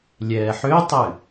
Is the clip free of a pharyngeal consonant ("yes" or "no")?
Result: no